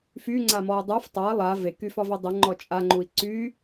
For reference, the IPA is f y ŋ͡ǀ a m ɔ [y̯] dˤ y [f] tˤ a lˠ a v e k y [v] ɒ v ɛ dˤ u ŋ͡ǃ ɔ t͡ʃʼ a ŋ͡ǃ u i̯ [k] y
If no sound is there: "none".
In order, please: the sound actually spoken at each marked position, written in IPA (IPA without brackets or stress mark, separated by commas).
u̯, f, f, ǀ